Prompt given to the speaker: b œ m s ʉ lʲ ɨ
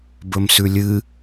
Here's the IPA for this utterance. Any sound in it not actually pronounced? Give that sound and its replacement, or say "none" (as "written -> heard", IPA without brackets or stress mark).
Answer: œ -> ɵ